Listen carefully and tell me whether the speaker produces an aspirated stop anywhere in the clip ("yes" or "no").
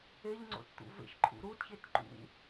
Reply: yes